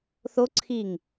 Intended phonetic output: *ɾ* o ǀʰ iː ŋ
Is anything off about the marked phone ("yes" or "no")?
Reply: yes